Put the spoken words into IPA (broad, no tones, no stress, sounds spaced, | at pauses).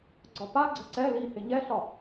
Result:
ɡ͡ǀ ɒ p a ɡ͡ǀ ə̤ ǀ ɛ l i h ɪ ɲ ɛ ɬ ɒ